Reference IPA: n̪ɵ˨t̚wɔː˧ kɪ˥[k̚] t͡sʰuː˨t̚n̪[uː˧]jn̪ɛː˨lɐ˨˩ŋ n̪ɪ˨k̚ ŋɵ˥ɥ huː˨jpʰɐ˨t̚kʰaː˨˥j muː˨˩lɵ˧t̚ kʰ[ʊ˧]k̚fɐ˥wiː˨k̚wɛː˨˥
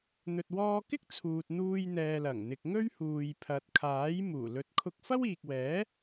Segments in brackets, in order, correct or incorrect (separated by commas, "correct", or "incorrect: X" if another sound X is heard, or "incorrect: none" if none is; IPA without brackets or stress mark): correct, correct, correct